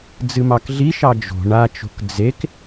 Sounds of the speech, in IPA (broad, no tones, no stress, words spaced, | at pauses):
d͡zɨmɑkɮiʃɑ d͡ʒo̤ ɳat͡ʃo̤k d͡zek